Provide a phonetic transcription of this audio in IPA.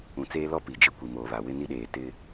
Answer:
ũ˨ t͡s eː˦ l ɔ˦ p i˨ d͡ʒ ɪ˦ kʷ i˨ m oː˨ β a˨ w ɪ˦ n i˦ ɗ eː˨ t ɪ˦

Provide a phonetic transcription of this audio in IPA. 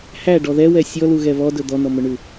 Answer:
h æ ɖ ɔ ð ɛ w ɛ sʲ ɔ l u ɣ ɛ β ɔ d ɵ d̪ ɔ n ɔ m ɵ ɳ ʉ

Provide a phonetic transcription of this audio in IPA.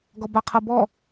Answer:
ɡ ɔ b a qʰ ɤ b ɔ

